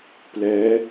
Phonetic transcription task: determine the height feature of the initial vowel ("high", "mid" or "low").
mid